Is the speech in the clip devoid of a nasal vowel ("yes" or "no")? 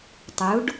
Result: yes